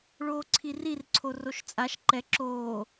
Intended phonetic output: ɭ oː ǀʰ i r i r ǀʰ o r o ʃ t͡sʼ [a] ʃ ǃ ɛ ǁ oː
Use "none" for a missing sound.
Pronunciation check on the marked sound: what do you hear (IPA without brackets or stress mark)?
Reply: a